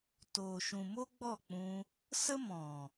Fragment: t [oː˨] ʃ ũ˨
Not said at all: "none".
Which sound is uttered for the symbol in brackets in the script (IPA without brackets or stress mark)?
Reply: oː˨